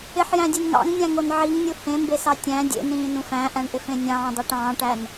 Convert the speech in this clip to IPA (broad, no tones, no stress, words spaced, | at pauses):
ɪħjæ̃dʲen ŋɑ̰ŋnʲæ̃ŋon ʕiŋnʲu hẽmbesɑ tʲæ̃ dʲḛnĩːnũf æ̃ʔæ̃ɳʔɪfẽ nʲɑ̃ːdˤæʈ ɑ̃ːʈæn